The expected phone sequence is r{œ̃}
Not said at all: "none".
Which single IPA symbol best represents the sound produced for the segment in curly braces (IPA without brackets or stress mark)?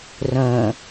œ̃